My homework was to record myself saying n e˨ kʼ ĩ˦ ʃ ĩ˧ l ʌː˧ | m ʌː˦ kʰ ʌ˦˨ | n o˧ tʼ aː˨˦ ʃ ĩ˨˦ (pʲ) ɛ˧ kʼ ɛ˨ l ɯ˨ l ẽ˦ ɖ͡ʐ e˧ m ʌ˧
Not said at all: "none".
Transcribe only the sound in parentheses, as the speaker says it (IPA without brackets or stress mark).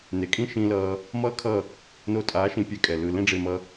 pʲ